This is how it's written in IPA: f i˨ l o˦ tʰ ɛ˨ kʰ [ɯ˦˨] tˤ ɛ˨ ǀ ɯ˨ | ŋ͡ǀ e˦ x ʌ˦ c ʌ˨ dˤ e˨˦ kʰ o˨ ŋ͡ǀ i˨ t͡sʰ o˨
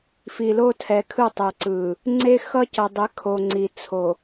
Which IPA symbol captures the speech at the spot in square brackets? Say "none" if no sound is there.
ɯ˦˨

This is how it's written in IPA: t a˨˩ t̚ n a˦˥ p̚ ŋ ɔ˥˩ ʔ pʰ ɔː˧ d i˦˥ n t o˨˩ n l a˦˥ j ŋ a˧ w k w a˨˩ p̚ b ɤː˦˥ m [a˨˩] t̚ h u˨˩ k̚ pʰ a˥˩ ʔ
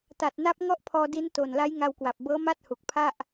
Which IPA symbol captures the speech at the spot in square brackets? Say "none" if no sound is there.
a˥˩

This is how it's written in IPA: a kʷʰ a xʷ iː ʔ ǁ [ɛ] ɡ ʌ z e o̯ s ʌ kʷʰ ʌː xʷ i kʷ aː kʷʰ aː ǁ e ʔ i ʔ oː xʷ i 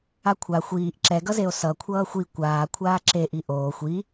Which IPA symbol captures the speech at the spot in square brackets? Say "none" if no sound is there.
ɛ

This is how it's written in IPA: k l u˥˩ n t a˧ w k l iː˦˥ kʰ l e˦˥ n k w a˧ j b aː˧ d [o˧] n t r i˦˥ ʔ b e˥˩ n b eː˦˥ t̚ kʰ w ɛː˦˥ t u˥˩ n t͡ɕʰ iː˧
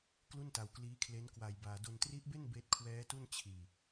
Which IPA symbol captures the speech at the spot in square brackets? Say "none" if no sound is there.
o˧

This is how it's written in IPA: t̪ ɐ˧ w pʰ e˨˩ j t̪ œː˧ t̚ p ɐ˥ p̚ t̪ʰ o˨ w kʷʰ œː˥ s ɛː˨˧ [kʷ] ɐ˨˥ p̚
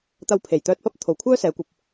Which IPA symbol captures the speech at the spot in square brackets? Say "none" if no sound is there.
kʷ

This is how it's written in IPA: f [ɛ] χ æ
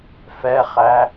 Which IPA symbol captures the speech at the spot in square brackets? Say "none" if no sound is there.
ɛ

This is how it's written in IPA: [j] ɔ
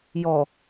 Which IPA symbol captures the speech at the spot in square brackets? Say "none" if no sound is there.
j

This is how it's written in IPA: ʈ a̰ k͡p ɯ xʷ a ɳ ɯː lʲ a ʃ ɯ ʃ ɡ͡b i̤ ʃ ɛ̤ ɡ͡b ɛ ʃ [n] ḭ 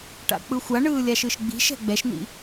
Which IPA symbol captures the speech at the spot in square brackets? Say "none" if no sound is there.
n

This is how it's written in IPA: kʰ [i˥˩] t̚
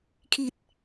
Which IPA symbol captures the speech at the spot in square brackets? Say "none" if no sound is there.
i˨˩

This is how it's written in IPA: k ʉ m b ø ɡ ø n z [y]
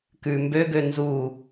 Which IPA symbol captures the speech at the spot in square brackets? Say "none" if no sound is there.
u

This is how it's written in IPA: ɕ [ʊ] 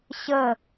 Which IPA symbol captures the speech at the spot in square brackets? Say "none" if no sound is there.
ə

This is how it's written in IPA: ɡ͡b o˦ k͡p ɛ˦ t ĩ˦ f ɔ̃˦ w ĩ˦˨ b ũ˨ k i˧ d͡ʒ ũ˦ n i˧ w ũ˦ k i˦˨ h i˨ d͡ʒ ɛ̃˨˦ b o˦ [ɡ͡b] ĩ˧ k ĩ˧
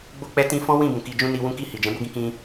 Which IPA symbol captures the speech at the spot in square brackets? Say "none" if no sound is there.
ɡ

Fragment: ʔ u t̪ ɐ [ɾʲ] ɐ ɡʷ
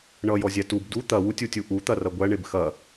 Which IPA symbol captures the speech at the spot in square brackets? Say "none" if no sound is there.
r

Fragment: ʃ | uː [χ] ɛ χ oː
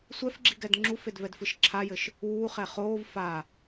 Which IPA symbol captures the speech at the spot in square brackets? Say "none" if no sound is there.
χ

